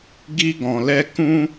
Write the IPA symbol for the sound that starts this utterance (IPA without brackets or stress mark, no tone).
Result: ɡ